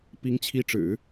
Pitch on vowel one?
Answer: rising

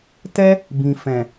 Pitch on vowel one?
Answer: high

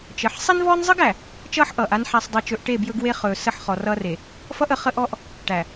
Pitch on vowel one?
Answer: rising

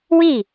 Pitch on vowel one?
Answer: falling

